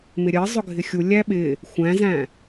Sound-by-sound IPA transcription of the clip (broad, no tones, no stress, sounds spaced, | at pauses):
m ɪ ɾʲ ɜ zˤ ʊ ɡʱ ɪ xʲ u lʲ æ ɓ ɪ | xʷ æ̃ z æ̃